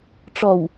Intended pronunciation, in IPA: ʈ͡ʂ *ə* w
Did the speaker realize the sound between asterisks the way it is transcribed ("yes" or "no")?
no